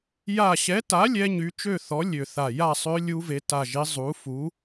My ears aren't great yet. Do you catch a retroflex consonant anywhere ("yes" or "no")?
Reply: no